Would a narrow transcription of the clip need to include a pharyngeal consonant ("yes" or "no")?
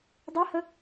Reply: no